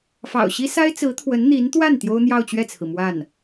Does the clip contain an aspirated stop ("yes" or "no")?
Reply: yes